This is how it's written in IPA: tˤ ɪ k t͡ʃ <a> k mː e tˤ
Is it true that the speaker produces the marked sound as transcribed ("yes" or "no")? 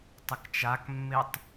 yes